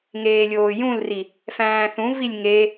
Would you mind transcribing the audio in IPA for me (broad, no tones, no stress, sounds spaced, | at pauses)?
ŋ eː lʲ oː j ũ l r i | f æ̃ː θ ũ v i lʲ ŋ e